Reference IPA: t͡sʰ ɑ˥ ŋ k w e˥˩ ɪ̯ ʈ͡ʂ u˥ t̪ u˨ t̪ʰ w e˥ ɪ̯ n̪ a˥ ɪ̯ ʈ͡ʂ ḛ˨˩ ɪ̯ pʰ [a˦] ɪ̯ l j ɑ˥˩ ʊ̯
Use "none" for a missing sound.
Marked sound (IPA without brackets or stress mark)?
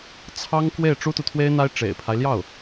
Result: a˦